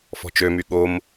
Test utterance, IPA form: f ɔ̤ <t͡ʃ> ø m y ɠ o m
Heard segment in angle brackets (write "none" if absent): t͡ʃ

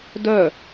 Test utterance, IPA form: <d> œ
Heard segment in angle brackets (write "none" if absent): d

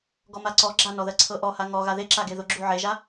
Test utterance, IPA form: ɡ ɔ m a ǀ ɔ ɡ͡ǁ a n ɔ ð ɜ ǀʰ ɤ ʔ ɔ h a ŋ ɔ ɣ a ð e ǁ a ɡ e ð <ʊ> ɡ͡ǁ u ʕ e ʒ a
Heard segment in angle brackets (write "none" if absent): ʊ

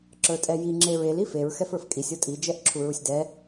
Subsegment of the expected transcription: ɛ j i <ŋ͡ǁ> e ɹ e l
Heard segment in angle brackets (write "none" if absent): ŋ͡ǁ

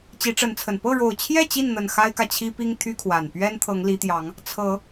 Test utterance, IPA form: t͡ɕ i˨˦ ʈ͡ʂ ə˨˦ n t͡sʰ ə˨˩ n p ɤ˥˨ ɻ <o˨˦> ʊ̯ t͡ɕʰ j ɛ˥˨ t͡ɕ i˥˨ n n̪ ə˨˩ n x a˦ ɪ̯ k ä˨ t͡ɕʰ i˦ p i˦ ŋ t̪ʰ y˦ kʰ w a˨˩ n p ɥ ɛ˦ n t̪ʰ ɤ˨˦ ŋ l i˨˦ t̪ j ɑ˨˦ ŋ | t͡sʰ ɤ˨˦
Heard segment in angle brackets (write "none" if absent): o˨˩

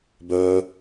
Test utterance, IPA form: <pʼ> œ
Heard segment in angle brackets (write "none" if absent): b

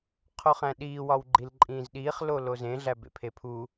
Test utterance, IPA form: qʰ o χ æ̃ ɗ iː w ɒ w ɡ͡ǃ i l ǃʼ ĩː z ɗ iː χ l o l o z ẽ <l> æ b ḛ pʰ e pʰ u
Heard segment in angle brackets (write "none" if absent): ɮ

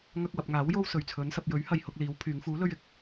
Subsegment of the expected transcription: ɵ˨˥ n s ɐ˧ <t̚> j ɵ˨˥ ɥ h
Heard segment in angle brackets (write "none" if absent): p̚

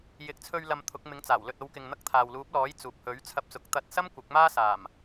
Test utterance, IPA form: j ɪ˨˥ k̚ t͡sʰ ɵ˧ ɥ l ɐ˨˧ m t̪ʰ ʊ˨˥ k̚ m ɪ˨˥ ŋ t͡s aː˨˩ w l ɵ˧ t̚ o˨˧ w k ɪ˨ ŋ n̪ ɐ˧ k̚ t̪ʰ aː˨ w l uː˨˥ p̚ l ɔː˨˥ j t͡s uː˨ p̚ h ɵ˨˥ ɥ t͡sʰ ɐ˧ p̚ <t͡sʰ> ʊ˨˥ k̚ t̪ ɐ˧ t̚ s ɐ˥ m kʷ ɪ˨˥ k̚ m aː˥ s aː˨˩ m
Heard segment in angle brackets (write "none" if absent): t͡s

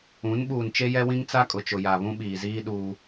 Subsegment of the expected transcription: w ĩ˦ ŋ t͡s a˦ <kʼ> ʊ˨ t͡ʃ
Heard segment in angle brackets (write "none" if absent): kʼ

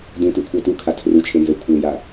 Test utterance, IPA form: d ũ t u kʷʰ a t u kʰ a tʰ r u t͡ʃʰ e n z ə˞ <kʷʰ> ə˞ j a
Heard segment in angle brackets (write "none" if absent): kʷʰ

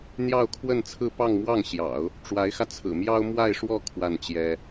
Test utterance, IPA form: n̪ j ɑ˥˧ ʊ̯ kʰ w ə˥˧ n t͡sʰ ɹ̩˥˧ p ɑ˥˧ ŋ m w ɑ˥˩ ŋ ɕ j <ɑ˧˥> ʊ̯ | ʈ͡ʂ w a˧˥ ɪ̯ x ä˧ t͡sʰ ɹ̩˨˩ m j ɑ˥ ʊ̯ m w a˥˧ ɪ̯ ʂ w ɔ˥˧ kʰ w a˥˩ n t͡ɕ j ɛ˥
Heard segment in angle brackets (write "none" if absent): ɑ̰˨˩˦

